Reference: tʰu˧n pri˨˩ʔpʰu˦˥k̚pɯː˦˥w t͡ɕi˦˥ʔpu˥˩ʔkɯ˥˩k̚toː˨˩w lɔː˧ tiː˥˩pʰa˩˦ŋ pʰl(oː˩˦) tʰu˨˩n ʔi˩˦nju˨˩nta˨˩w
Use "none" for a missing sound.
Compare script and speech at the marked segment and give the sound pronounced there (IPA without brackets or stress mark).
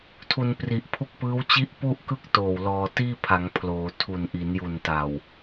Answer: oː˩˦